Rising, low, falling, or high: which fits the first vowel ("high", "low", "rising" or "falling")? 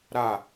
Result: falling